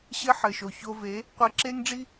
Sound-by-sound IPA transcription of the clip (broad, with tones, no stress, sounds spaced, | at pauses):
ɕ ɘ˦ ħ ɘ˨ ʃ o˨ ç o˧ v e˨˦ | qʷ e˧ ǁ e˦ ŋ ɖ͡ʐ i˦